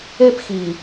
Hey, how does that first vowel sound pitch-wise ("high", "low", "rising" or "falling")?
high